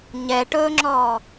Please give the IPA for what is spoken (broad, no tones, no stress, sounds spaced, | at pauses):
ɲ ɛ ʈ ɵː ŋ͡ǁ ɔː